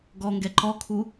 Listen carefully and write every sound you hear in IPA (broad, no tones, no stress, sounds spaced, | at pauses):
ɡ ɔ ŋ ɡ ɛ ǃ ɔ kʰ u